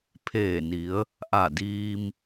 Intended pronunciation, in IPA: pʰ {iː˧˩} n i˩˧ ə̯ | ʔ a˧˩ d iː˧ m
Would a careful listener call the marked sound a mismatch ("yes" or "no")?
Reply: yes